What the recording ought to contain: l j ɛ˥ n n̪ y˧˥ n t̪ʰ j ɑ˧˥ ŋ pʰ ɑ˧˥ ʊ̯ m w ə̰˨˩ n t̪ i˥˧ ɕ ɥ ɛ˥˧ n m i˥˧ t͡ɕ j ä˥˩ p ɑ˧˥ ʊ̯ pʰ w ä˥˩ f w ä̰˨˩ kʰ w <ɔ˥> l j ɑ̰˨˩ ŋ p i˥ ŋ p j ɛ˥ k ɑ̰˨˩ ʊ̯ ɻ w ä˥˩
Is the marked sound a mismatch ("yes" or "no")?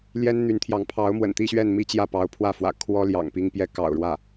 no